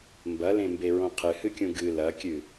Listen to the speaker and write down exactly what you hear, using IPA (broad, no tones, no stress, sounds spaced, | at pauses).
m b ɐ l ẽ m b e ɹ õ qʰ ɨ h ɨ kʲ ũ ɡ ɨ l ɐ kʲ ɨ